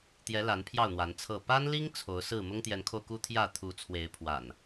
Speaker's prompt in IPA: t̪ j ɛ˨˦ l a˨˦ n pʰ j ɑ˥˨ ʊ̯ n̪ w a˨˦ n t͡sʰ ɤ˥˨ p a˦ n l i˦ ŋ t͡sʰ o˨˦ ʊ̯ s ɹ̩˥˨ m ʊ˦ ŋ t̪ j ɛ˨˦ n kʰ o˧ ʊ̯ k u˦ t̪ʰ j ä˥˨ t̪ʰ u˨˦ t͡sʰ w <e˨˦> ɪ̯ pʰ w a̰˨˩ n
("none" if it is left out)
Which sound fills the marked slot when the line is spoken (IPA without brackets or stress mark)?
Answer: e˨˦